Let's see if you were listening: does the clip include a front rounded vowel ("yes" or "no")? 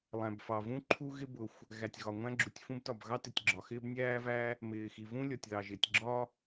no